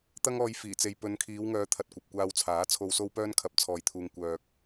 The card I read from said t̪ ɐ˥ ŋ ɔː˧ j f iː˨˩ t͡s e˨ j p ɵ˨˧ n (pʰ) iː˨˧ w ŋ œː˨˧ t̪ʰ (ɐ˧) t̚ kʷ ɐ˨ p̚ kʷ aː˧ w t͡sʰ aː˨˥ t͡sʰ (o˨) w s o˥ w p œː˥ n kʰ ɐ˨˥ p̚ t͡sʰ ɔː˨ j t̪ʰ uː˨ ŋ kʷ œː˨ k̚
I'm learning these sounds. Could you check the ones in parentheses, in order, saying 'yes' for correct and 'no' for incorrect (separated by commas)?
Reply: no, no, no